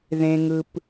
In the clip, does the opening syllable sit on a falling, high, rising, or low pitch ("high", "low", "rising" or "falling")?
high